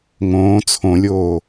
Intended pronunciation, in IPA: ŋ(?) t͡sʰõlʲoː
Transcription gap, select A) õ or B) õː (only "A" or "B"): B